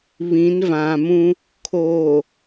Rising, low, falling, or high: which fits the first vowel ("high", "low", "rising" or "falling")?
rising